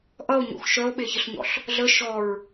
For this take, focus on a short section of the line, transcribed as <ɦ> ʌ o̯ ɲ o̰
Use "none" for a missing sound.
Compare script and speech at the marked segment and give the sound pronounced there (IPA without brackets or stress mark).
ʔ